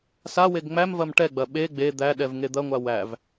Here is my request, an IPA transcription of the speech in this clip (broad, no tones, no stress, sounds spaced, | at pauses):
s a w e ɡ ŋ͡m æ m v ɐ m ʈ ɛ ɡ͡b ɐ ɓ e ɡ͡b e d̪ æ ɗ ɛ v ŋ e d̪ ɐ ŋʷ a w æ v